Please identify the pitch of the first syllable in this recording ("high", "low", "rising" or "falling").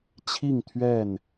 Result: falling